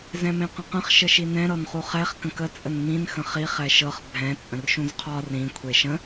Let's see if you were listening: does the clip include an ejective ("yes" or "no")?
yes